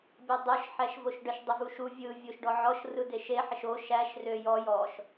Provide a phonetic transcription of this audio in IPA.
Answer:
bʲ æ dˤ o ʃ ħ æ ʃ v o ʃ ɖ ə ʃ dˤ ə v u ʃ u vʲ ɯ vʲ o ʃ ɖ ɔ ʕ ɔ ʃ r ɯ d e ʃ e ħ ə ʃ o ʃ æ ʃ r ø j ɔ j ɔ ʃ

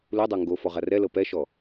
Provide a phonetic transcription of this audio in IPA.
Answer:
l u dˤ o ŋ ɡ o f ɔ ʁ a r ɛ l ɤ p ɛ ʃ ɔ

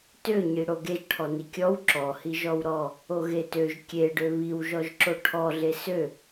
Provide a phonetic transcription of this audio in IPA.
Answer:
t ø ɲ i ɽ o ɡ e ʒ ʈʰ ɔ n i kʲ ɔ w ǁ ɔ h i ʒ ɔ w ɾ ɔ | o ɣ e t ø ʒ kʲ e ɖ ø β i w ʒ ɔ ʒ ǁ o ʈʰ ɔ ɮ e s ø

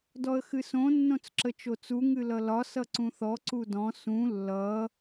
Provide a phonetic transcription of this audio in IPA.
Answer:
d ɔ ə̯ x ɨ s õ nː õ t͡s ǁ ə t͡ʃ o t͡s u ŋ ɨ l ʌ l ɒ s ʌ ǀ ũ θ ɔ ǀ u d ɔ̃ s ũ lː ʌ

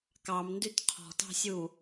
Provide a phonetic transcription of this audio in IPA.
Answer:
k ɑ m n d y t qʰ ɔ̤ t ɑ̤ sʲ u

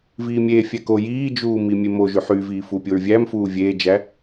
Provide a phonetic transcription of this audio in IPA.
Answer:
v iː mʲ e fʲ æ k o j iː d͡ʒ uː m i mʲ e m o ʒ y ħ y v iː f u pʲ o ɹ vʲ æ m f uː vʲ eː d͡ʒ æ

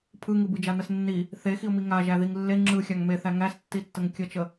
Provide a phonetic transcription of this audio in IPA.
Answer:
pʰ ɯ ŋ ɯ b ɯ d͡ʒ a n ə s nː i | θ e x i ʊ̯ m i ŋ a ʒ æ ð i ŋ lː e ŋ͡ǁ ɯ xʲ a ŋ m e θ æ ŋ æ s tː i tː ə ŋ kʲ ə t͡ʃ ə

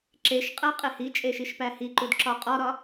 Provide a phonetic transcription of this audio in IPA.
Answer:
ǁ e ʃ qʼ æ qʼ e h i t͡ʃʼ e ʃ i ʃ p æ h i ǃ u d ǁ ɒ qʼ ɒ ɾ ɒ

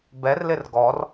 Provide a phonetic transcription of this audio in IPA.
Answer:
b ɛ r l ɪ r ɡ ɔ r

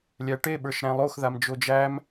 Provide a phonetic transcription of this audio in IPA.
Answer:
lʲ æ ʈ e ɓ ə˞ ʃ ɾ æ̃ lˠ o x ð a m d͡ʒ o d͡ʒ æ m

